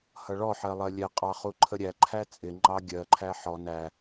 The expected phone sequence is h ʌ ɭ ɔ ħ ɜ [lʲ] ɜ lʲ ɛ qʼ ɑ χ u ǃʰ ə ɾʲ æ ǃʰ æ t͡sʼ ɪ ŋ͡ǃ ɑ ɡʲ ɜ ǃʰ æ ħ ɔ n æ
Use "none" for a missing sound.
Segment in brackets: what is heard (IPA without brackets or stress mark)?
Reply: lˠ